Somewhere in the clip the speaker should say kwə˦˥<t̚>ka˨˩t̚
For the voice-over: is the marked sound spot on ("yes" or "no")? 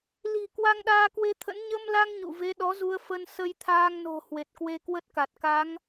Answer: yes